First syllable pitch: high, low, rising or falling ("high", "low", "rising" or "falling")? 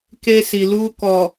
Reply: high